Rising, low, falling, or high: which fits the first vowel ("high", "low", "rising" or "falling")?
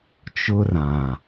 high